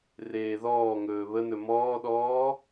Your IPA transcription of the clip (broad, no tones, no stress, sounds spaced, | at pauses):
r eː ð ɔː ŋ ɵː β ə n ɵ m ɔː ɗ ɔː